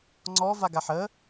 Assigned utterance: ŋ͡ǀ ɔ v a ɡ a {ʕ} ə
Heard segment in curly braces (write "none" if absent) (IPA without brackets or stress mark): ħ